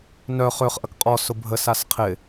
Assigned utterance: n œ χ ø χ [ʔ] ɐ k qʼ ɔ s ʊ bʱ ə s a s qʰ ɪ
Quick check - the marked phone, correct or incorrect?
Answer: correct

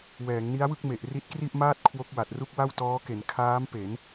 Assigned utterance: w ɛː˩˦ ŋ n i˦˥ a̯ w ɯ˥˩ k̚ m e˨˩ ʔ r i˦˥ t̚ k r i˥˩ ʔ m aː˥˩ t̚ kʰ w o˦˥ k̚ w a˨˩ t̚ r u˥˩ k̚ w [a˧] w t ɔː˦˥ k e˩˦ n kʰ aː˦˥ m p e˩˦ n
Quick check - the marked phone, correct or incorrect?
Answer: incorrect: a˥˩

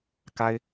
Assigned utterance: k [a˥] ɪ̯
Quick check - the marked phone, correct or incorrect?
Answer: correct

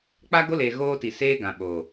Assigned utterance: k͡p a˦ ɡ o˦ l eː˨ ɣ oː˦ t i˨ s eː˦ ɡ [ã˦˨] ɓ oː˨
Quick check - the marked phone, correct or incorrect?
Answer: incorrect: ã˨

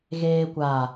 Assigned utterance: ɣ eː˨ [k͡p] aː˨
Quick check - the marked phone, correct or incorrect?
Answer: incorrect: kʷ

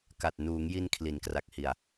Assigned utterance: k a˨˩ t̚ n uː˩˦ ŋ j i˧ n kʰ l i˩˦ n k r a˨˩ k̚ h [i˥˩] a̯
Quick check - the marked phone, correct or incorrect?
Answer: incorrect: i˨˩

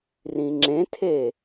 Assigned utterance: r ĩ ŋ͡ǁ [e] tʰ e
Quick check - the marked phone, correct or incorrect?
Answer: incorrect: ẽ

